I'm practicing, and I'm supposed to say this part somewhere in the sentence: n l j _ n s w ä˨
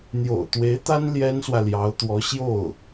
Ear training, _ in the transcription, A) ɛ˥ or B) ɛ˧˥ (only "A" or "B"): A